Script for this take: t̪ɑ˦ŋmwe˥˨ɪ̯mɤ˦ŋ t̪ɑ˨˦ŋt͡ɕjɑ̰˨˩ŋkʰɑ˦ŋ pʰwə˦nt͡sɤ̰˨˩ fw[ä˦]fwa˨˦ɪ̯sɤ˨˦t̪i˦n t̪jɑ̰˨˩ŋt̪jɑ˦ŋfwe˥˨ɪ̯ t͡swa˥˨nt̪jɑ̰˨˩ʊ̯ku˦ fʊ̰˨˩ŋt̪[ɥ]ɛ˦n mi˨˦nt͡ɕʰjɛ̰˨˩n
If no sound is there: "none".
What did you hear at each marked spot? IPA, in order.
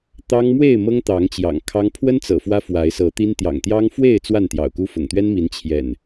ä˦, ɥ

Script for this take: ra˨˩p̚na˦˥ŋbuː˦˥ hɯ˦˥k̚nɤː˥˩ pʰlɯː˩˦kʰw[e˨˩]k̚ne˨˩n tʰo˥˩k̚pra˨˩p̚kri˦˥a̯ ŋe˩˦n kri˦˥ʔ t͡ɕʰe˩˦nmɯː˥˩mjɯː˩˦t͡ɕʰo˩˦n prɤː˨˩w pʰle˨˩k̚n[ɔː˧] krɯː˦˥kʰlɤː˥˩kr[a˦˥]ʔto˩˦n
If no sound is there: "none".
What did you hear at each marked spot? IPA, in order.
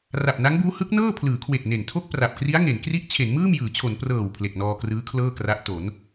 e˨˩, ɔː˧, a˦˥

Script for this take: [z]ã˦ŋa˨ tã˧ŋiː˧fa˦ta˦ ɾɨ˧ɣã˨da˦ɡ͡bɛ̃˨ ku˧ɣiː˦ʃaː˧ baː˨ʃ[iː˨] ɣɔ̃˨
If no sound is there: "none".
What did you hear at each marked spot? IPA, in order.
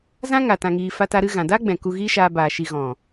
z, i˨

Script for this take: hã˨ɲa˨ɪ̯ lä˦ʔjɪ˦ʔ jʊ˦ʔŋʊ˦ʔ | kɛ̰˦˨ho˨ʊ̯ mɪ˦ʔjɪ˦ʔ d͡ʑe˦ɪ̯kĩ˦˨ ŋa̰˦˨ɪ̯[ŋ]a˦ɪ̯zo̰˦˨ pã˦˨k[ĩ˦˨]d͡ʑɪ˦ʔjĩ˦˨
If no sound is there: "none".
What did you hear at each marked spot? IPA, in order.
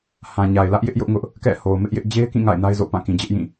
n, ĩ˨

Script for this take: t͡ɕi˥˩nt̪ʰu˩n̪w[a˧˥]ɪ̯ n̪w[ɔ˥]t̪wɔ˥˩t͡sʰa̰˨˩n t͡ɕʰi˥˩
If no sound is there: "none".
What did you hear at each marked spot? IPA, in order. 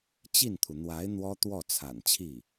a˧˥, ɔ˥

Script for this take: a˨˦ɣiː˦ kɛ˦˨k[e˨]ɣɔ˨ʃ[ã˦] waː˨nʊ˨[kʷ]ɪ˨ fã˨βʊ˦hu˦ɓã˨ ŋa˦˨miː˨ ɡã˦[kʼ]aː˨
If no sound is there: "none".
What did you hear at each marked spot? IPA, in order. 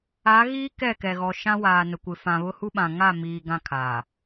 ɛ˨, ã˦, kʷ, kʰ

